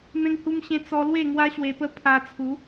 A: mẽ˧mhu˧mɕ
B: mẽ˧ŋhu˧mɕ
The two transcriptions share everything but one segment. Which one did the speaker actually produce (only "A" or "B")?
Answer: B